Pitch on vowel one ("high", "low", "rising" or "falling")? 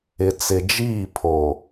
low